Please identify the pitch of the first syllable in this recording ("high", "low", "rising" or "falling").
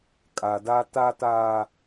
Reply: low